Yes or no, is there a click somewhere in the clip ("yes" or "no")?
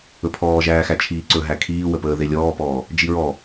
yes